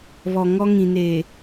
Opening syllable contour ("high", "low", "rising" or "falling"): low